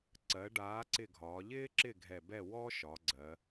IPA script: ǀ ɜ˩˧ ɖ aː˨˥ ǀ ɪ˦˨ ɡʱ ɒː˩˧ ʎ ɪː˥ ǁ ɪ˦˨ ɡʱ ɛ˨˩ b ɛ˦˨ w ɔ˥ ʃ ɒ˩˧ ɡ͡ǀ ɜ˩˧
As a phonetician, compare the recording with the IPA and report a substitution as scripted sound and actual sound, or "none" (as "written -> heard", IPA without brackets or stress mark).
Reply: none